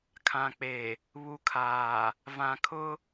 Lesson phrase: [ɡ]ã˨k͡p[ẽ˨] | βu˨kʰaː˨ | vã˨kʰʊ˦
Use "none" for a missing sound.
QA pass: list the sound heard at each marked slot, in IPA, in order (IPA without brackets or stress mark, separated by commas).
kʰ, e˨